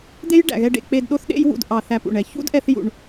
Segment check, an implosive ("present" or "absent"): present